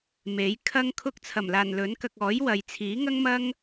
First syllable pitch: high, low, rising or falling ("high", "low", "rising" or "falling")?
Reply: rising